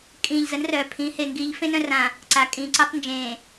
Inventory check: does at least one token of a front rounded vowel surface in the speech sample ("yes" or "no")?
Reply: yes